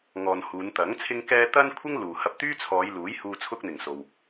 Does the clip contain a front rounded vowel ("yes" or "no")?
yes